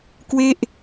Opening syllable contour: falling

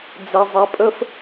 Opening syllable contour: low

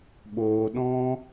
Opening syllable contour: low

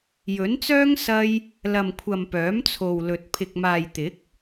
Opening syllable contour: rising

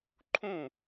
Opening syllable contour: falling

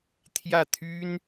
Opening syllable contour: falling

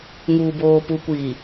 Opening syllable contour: low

